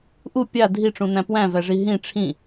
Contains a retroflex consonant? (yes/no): yes